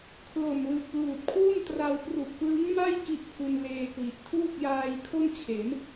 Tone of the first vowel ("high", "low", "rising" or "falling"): low